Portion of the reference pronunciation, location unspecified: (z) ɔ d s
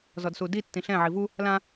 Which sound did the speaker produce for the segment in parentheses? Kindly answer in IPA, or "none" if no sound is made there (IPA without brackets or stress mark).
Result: z